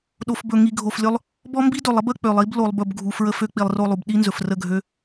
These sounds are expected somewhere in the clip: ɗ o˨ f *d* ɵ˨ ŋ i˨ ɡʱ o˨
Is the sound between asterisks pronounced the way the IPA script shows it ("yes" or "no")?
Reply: no